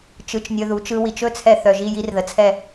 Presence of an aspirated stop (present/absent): present